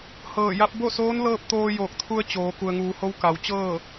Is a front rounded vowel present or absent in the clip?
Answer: absent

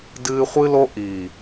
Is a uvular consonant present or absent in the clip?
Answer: present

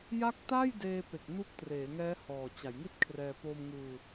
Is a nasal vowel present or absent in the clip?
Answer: absent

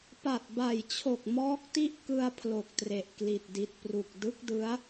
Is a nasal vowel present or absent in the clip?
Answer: absent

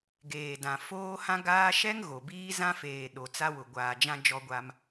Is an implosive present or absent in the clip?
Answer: present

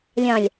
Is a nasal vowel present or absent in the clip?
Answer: present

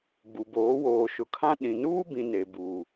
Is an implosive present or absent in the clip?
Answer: present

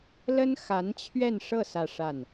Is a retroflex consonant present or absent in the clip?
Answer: present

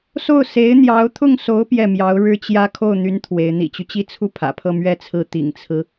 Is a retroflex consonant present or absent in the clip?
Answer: present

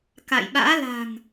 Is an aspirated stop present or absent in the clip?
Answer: absent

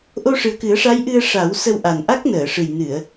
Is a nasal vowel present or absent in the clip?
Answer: absent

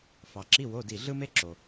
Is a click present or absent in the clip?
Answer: present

